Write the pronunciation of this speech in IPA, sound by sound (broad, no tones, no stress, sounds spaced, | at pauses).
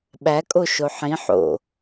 ɓ æ kʼ o ʃ o ħ ĩ ħ o̰